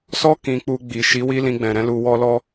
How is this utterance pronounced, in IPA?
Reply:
s ɔ˦ k ĩ˧ k͡p u˧ ɡ͡b i˨ ʃ i˨˦ w i˦ l ĩ˧ ɡ͡b ɛ̃˨ ɾ ɛ̃˧ l u˨ w ɔ˧ l ɔ˦

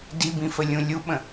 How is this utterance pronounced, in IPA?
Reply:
d i b ĩ f ə lʲ ũ lʲ u ɓ ə̃

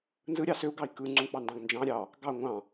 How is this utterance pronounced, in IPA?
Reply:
n z ɯ ɾʲ ɑ s ø u̯ ɡ ɑ i̯ k ɯ ŋ͡ǀ ũ k͡p ɑ n d ɑ̃ ɡ n d͡ʒ ɑ̃ ɾʲ ɑ | ɡ ɑ ŋʷ ɑ̃

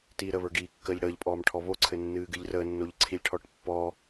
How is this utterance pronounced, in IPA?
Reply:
t iː ɾ ə β ə˞ ɡ iː kː əː ʎ ɽ əː ʎ pʼ ɔː m ʈʰ ɔ β o ǀʰ ɘ nː ɨː ɡ ɨ ʎ r əː nː o ʎ ǀʰ i lʲ ʈʰ ɔ ʈ pː ɔ

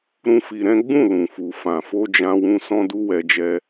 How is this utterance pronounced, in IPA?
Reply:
ɾ ũ˦ f i˧ ɾ ɛ̃˦ ɡ͡b ũ˦˨ l ũ˨ f u˨ f ã˨ f o˧ d͡ʒ ã˧ w ũ˧ s ɔ̃˦ d u˦ w ɛ˧ d͡ʒ ɛ˧

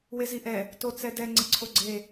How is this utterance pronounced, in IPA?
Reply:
w e z i ʔ ɛ | t o t͡s ɛ d ɛ ŋ͡ǀ ə ǀʰ o ɡ͡ǀ e

